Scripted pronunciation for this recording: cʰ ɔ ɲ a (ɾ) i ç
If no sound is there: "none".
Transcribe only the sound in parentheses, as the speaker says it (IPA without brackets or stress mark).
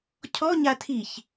tʰ